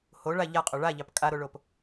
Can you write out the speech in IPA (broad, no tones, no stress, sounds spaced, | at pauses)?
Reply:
h o ɭ a ʎ a qʼ o ɭ a ʎ ɑ p kʼ a ɾ o ɭ o p